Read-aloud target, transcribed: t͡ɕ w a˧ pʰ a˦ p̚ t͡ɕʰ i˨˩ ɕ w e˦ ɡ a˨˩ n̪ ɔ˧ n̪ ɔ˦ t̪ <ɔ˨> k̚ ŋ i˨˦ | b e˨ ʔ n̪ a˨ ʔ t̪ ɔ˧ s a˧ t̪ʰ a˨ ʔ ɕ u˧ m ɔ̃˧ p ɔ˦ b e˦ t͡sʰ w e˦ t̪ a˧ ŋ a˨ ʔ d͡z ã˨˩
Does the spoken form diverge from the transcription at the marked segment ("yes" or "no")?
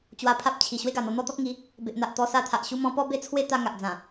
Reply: yes